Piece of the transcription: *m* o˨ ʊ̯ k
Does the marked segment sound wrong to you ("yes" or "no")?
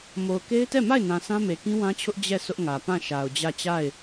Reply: no